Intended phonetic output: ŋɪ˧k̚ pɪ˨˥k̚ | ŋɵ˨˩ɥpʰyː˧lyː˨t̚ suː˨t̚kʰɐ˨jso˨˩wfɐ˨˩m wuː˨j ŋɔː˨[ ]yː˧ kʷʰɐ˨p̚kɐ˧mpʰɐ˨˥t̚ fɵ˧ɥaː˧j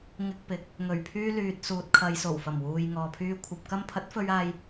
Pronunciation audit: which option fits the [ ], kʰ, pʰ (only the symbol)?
pʰ